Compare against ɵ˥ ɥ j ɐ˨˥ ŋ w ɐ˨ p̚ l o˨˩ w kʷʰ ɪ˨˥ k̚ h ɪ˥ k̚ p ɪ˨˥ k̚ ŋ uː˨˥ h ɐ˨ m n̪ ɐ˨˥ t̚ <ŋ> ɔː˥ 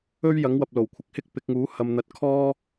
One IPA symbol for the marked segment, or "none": kʰ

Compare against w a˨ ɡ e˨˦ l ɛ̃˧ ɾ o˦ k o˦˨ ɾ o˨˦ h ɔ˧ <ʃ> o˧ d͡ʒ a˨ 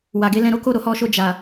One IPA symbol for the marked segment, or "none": ʃ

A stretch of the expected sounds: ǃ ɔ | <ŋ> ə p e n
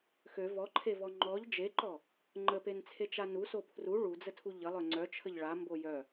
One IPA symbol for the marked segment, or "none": ŋ͡ǃ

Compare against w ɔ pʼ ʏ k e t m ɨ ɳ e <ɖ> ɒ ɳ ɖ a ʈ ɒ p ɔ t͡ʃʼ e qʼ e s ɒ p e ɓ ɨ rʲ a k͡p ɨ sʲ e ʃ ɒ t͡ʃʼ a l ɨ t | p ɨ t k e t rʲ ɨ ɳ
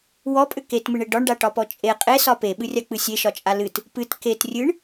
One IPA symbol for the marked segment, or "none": ɖ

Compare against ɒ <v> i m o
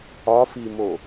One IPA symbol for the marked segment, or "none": f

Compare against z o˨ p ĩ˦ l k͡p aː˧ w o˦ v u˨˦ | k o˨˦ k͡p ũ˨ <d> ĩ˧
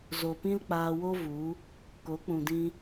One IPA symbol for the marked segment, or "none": d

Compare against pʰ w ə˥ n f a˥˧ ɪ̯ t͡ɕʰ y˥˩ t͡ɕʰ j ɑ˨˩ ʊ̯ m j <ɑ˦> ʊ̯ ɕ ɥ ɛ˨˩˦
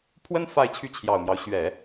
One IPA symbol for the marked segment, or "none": ɑ˦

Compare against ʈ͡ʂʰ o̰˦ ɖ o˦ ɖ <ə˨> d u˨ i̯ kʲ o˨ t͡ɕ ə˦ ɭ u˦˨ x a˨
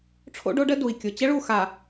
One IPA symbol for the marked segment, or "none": ə˦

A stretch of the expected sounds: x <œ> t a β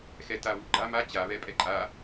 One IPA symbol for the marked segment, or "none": ɛ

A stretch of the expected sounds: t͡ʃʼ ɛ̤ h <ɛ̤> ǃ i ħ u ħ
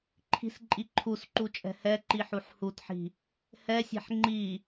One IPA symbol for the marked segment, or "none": ɛ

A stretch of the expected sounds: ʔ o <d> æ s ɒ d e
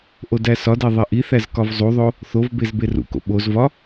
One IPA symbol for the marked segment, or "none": d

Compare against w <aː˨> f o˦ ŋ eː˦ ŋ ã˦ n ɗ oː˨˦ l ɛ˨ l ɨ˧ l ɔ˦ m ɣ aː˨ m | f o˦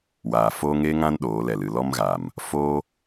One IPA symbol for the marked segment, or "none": aː˨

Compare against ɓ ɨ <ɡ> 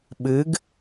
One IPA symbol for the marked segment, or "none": ɡ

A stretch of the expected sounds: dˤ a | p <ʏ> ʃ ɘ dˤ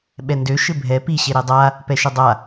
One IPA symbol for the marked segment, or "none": ɛ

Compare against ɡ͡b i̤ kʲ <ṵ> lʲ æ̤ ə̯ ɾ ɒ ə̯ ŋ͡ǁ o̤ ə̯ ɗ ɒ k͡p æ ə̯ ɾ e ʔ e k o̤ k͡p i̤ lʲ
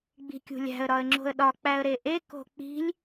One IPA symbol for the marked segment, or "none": ṳ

